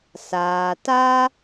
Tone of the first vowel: low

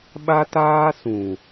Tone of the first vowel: high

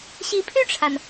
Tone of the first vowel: rising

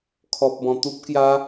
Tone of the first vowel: low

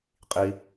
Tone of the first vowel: low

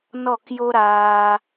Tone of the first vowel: falling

